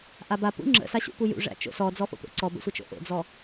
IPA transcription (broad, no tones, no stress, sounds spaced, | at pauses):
ʔ a b a p ṵ ŋ͡ǁ ə̰ s a ɕ ṵ p u j ṵ ʐ æ̰ t͡ʃ o̰ s ɔ d͡z ɔ f o̰ t̪ o̰ ǀ ɔ b ə̰ sʷ ə t͡ʃ o̰ ʔ o̰ d͡z ɔ